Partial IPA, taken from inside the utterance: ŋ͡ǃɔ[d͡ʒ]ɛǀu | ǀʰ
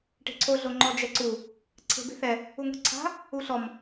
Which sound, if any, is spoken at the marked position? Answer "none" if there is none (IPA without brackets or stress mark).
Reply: d͡ʒ